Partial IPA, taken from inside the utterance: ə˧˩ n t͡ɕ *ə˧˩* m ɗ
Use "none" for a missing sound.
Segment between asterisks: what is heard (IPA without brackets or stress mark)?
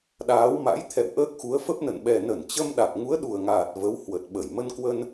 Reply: ə˧